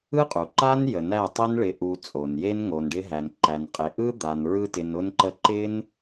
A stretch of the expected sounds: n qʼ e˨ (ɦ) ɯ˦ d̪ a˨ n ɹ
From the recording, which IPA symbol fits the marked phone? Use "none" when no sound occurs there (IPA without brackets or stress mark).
ʔ